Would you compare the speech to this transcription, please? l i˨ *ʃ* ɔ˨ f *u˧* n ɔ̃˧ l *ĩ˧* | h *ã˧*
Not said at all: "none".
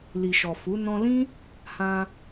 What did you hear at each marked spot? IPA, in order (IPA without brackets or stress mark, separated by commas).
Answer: ʃ, u˨˦, ĩ˦, ã˧